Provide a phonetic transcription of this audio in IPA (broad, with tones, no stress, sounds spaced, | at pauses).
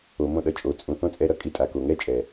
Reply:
o˨ m õ˧ ɗ ʌ˨ t͡ʃʼ o˨ t͡sʼ ũ˨ θ õ˦ t͡sʼ ɛ˧ ɾ ʌ˦ kʼ i˧ tʼ a˨ k o˨ ŋ ɛ˦ t͡ʃʼ ɛ˨